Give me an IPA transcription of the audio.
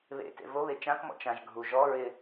β ḛ t ḛ v o β e t͡ʃ ã k m ɔ̰ t͡ʃ ã ʒ ɡʱ u ʒ ɔ ɹ ɪ

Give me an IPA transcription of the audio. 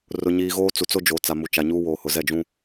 r ʊ˨ ɲ iː˨ ɣ oː˦ t͡s u˨ t͡s o˦ d͡ʒ oː˨ t͡s a˨ m u˨ t͡ʃ a˨ ɲ uː˦ w oː˨ h ʊ˨ z ɛ˦˨ d͡ʒ ũ˦

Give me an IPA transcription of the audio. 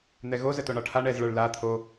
n̪ ɛ ɣ o z ə t o ɳ ɒ ʈʰ a ɳ ɛ z ɭ ə˞ ɭ l a t̪ʰ o

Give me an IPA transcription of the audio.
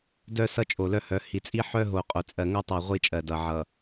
d œ˦ s ʌ˦ t͡ʃʼ o˨ l œ˦ h œ˨˦ h i˨ t͡sʼ i˦ ħ œ˦ ɦ o˨ qʼ o˨ t͡sʼ ɜ˨ ŋ o˦ tˤ ɜ˨ ʁʷ i˦˨ t͡ʃʼ ɜ˨ d ʌ˨ ʕ ʌ˨

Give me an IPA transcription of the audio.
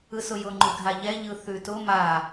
ɯ s ʊ j ʊ ŋ͡ǃ ʉ ɡʱ a ʎ ɛ ʎ ɯ θ ʉ t ʊ m a

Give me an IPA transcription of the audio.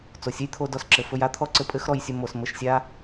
t͡s o˩ sʲ ɘ˥ j t̪ʰ o˧ d ɔ˧ s ǁ ɘ˩ f ɵ˧ j a˥ t̪ʰ ɔ˥ ǀ ɘ˧ pʼ ɘ˥ x ɾ ɔ˧ j sʲ ɵ˧ m o˧ s m ɘ˧ ʃ sʲ a˥

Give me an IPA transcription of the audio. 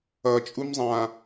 ʌ t͡ʃʼ u m zˤ ã

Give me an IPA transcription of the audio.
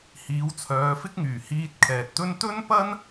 h iː˨˧ w t͡sʰ œː˨˧ f ɪ˥ k̚ ŋ yː˨˩ h iː˧ t̚ kʰ ɛː˨ t̚ t̪ ɵ˥ n t̪ ɵ˥ n p ɐ˥ n

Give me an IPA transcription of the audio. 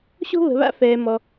ɕ o̤˥ β ə̤˧ β a̰˥ f ɛː˧ m ɔ˧

